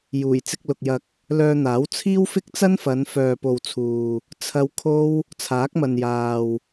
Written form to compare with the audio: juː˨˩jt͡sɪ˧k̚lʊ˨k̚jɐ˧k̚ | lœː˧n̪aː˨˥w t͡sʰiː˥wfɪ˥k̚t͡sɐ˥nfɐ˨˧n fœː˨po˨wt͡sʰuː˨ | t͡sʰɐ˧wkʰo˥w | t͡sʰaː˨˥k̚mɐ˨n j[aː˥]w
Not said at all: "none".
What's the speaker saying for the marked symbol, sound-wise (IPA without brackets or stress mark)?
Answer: aː˨